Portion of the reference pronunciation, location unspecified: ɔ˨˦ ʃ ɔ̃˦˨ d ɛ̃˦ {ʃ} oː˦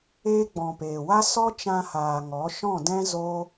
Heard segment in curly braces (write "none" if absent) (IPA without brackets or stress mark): z